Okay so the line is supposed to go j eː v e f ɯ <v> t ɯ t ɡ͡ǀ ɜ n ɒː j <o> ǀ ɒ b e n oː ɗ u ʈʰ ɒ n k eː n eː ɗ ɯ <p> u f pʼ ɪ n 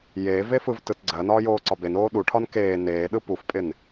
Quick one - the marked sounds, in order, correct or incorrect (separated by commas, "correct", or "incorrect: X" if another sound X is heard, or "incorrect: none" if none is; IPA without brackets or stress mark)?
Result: correct, incorrect: oː, correct